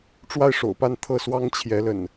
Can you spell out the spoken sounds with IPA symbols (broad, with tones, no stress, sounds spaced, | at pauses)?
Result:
ʈ͡ʂ w a˥˨ ɪ̯ ʂ o̰˨˩ ʊ̯ p a˥˨ n t̪ʰ ɤ˥˨ s w ɑ˦ ŋ t͡ɕʰ j ɛ˨˦ l ə̰˨˩ n